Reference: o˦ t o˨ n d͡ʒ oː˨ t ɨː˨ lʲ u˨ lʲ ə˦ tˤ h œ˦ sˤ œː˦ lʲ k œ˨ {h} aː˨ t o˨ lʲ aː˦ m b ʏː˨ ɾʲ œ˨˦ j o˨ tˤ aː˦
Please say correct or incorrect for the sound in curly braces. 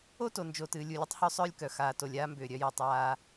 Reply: incorrect